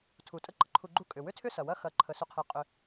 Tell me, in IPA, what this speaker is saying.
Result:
tʰ u˩ tʼ ə˦ ǃ ə˩ ǃʰ u˨ ɡ͡ǃ u˦ kʼ ʏ˩ w ʏ˥ tʰ ʏ˥ s ɐ˩ w ɐ˥ x ɐ˨ ǃʰ ə˩ s ʏ˨ qʰ i˩ qʼ ʏ˩

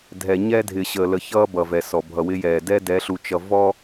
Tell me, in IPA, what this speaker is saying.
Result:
dʱ ɛ˨ ɲ ɛ˦ dʱ ɪː˨ ɕ əː˨ l ə˨ ç ʌː˦ b ʌ˨ v ɛ˨ s ɔ˨ bʱ ʌ˨ w ɪ˦ j ɛː˨ d ɛ˦ d ɛ˨˦ ɬ u˨ t͡ʃ ʌ˨ v ɔ˦

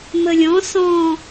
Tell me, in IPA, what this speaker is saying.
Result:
m ə lʲ ɔ̃ s ɔ̃

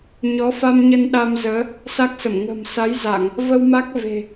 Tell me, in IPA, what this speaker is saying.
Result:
ɲ ɔ˨˦ f a˧ m ɲ ə˧ n ɗ a˧ m z əː˨˦ | s a˦˥ k̚ s ə˧˩ m ŋ ə̤˨˩ m s a˨˦ j z a˧˩˨ ŋ | v ə˧ w m a˦˥ k̚ v e̤˨˩

